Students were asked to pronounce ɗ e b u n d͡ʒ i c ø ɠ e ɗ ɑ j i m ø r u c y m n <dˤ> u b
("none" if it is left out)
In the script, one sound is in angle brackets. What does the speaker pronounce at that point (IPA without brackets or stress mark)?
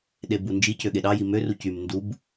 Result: d